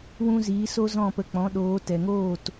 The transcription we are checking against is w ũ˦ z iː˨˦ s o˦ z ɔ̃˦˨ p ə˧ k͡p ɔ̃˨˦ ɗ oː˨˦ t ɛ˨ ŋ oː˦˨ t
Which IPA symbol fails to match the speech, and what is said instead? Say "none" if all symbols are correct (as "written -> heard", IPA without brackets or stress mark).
none